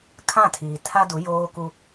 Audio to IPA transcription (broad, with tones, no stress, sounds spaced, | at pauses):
kʰ ã˦˨ tʰ iː˨ tʰ a˦ d u˨˦ j oː˦ k u˦